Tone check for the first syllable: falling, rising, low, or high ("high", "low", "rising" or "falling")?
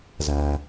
low